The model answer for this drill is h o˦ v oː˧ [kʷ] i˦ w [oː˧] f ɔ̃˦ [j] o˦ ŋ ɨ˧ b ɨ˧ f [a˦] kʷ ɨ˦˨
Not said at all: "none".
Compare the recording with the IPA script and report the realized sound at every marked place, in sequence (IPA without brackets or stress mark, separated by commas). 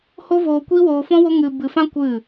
kʷ, oː˧, w, ã˦